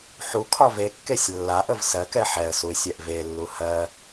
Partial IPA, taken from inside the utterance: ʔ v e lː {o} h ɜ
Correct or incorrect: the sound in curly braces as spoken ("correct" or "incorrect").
incorrect